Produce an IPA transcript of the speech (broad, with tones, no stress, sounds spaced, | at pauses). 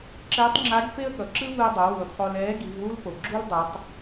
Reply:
ǁ ɛː˧˥ tˤ ŋ͡ǁ a˧˥ ɡ f e˥ ə̯ ɠ ʌ˩ ǁ ɯ˥ v ɯ˧ ə̯ dˤ o˩˧ w uː˩ d sˤ o˧ l ɛː˧˥ ɡ i˩˧ v w u˥ l p o˩ ɡ͡ǁ u˥ l dˤ ɯ˩˧ tˤ